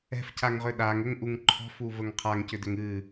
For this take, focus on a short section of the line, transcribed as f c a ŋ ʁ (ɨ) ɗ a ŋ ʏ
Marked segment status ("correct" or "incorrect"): incorrect